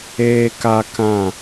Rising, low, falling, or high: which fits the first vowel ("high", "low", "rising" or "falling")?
low